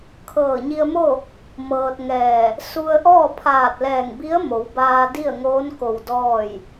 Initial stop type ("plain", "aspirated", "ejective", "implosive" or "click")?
aspirated